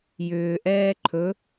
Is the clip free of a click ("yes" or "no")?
no